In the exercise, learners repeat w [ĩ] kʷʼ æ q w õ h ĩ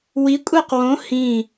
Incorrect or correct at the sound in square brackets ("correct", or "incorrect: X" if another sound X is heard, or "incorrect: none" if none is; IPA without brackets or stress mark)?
incorrect: i